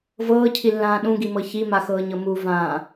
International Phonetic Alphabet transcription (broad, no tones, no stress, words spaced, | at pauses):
vɤːcʰilːãː ɗũɡimɤ çimaxɤːɲɤ muvãː